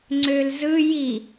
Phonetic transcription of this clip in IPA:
ŋ͡ǀ ø l z ɯ j i

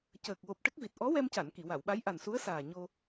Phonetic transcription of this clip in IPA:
c əː˨˩ k̚ w o˨˩ p̚ ʈ ə˦˥ k̚ v i˨˩ t̚ ʔ ɔ˧˥ w ɛ˧ m c a˨˩˨ n k i˨˩˨ w a˨˩˨ w ɓ a˧˥ j ʔ a˨˩ n s u˧˥ ə̯ s aː˨˩ ɲ o˧

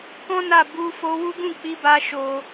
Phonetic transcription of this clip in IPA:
k ɔ̃˦ n a˦˨ b u˧ f o˧ w u˦ ɡ ũ˦˨ k͡p i˧ b a˧ ʃ o˦

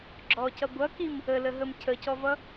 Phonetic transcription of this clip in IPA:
ɡ͡ǁ ɔ c ʌ ɡʷ ʌ k i m | ə l ə ɦ ə m cʰ ə c ɔ v ʌ

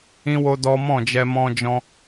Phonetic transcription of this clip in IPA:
ĩ˦ w o˦ d ɔ˦ m ɔ̃˦˨ d͡ʒ ɛ˧ m ɔ̃˧ d͡ʒ ɔ̃˧

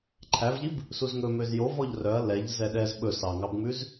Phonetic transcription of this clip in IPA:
ǃʰ æ v ʎ i b | s u z ŋ ɵ m ø z j o v ɔ ʎ r œ ɐ̯ l ɛ ʎ z ɛ ɗ ɛ z ɓ ɵ s ɑ ŋ ɑ b ŋ͡m ʉ z

